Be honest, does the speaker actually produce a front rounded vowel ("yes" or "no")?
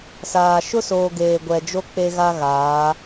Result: no